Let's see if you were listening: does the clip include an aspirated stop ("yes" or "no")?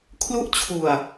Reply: yes